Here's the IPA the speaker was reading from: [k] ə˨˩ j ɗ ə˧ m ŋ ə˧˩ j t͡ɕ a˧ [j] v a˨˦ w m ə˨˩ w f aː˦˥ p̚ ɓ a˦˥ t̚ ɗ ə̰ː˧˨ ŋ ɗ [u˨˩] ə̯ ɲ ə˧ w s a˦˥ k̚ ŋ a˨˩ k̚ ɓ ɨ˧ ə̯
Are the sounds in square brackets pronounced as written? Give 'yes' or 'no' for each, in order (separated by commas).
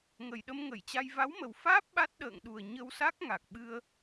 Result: no, yes, yes